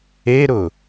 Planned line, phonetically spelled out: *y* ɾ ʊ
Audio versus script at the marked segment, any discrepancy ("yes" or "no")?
yes